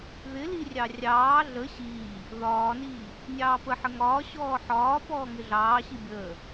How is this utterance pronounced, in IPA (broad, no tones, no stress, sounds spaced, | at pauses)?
ð ɪ l i rʲ ɑ rʲ ɑː ɮ ə ɕ iː | ð ɒː n iː | nʲ ɑː p ə ħ ə ŋ ɒː ɕ ɔː ħ ɒː p ɔː ŋ ɪ ɮ ɑː ɕ i bʲ əː